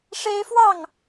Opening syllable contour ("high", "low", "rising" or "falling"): high